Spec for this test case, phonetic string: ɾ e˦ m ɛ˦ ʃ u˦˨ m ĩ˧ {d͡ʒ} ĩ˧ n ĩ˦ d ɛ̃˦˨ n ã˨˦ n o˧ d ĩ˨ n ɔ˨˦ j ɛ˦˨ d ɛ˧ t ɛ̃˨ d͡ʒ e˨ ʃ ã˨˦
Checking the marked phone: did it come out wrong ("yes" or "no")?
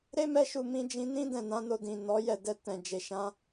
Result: no